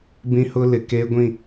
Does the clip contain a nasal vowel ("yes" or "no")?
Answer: yes